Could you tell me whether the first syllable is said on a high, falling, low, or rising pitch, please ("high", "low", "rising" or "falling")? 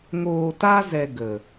low